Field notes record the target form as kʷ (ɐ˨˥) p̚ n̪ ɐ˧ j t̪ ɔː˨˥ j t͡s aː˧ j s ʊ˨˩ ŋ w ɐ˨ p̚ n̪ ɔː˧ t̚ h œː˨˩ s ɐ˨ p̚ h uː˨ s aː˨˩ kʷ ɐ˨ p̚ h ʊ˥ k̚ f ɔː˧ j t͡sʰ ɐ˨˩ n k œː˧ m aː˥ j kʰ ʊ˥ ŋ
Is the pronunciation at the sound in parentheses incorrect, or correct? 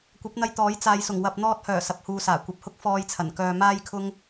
correct